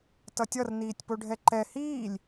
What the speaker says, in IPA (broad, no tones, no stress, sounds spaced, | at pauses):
t ʌ tʲ ʌ r n iː tʲ p o ɖʱ ɛ ǃ ɛ h iː lʲ